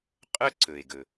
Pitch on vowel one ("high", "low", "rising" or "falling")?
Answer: high